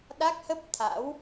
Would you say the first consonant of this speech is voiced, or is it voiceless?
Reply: voiced